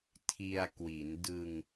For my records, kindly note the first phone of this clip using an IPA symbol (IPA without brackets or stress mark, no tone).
tʰ